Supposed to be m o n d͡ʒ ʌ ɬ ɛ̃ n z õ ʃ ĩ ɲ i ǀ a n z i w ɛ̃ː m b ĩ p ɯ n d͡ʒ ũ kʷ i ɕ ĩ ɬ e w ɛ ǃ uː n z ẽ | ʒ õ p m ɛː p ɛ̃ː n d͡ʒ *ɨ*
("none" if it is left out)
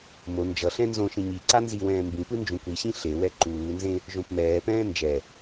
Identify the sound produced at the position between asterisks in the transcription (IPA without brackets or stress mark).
ɛ